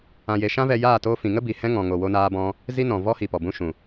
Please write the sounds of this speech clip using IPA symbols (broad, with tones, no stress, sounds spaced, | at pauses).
ã˧ j e˧ ʃ ã˦ v ɛ˧ j aː˦˨ t oː˧ f ĩ˨ ŋ ə˦ b iː˨ h ɛ̃˦ ŋ ɔ̃˨ ŋ o˧ w o˦ n aː˦ b ɔ̃˦ | z i˦ n ɔ̃˨ v ɔ˦ h i˨ p ɔ˨ b ũ˦ ʃ ũ˨